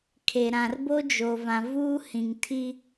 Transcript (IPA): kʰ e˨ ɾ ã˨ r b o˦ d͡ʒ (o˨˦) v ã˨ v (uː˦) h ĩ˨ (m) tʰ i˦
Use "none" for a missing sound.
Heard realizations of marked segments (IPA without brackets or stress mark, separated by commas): o˨, uː˦, ŋ